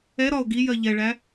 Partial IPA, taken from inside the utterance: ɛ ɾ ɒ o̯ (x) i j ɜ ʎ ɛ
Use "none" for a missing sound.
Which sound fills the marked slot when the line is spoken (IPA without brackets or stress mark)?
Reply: ɡ